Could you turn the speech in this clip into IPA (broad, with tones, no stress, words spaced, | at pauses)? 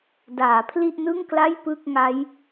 daː˩˦pʰli˥˩ʔnɯ˥˩ŋkla˥˩j pɯ˥˩k̚ŋa˦˥j